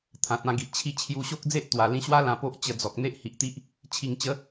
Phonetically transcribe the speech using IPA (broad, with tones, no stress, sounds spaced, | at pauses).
t̪ʰ ã˨ t̚ ã˧ ɡ i˨ ʔ t͡ɕʰ i˦ t͡ɕʰ j u˧ ɕ o˦ k̚ d͡z e˦ ʔ t̪ w a˨˩ l ĩ˧ ɕ w a˦ l ã˧ p o˦ ʔ t͡ɕ ə˧ d͡z ɔ˨ k̚ n̪ e˦ ʔ h i˨ ʔ t̪ i˦ ʔ | t͡ɕʰ i˨˩ ŋ t͡ɕ ə˨˦